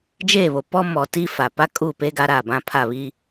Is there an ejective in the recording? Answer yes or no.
yes